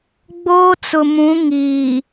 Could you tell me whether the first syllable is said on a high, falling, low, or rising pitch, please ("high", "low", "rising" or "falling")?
high